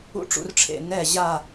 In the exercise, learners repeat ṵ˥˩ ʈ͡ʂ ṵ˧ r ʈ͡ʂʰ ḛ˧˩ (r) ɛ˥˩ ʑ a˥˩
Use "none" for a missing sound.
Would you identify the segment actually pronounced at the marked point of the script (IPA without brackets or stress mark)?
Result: n